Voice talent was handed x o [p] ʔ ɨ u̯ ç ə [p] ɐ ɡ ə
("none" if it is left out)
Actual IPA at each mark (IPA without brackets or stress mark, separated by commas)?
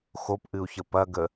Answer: p, p